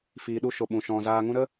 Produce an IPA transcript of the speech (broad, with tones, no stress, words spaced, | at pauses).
fiː˨ɗu˧ ʃo˨ɓũ˨ ʃɔ̃˨zaː˧ŋũ˦ ɾə˦